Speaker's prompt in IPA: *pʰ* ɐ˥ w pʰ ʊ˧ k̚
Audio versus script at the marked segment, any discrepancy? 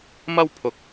yes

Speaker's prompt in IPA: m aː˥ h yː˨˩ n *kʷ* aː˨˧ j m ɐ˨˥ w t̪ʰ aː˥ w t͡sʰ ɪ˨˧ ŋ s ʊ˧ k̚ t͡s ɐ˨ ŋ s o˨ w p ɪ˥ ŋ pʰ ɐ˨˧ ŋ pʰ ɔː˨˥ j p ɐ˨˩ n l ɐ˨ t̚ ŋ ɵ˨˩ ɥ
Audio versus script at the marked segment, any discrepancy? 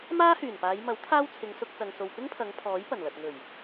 yes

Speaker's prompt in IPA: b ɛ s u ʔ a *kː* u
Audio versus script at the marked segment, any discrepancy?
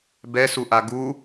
yes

